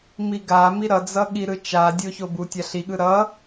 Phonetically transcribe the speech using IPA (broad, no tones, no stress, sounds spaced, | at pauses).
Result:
m i ɡ a m i ɾ ʌ d͡z ʌ ɠ i ɾ ɯ t͡ʃ a dʲ o ç o b u tʲ a ɬ i ɠ ɯ ɾ ʌ